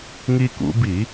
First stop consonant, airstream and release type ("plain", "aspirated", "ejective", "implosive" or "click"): plain